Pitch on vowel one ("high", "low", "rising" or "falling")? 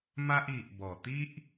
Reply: high